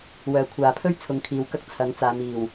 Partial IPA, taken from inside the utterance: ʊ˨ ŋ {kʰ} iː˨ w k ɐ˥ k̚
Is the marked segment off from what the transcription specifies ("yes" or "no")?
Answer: no